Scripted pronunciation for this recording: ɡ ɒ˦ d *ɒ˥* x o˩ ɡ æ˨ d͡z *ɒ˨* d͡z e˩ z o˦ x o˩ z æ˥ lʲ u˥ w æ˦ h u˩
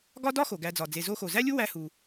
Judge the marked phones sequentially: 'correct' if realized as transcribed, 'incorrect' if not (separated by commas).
correct, incorrect